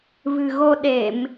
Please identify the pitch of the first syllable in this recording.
low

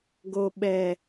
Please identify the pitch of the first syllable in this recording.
low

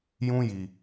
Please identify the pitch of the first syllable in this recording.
high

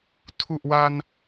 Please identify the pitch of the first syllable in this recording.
low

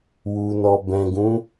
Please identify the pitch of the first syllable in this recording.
low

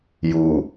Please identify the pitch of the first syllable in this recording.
low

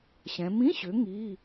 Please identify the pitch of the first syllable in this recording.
rising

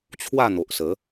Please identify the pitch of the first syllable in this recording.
falling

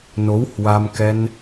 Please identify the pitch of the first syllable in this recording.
rising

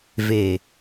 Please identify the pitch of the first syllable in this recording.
low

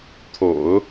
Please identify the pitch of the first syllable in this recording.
low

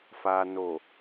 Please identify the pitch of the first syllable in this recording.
low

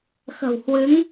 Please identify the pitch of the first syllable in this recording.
low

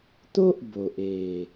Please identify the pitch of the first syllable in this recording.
high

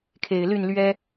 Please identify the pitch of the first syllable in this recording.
low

